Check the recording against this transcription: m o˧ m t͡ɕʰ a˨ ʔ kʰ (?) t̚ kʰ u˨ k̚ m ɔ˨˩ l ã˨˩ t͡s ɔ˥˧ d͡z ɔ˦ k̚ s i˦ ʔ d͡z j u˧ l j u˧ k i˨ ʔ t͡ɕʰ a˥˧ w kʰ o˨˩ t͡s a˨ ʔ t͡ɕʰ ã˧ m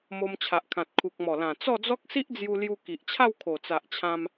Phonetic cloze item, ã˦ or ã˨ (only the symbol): ã˨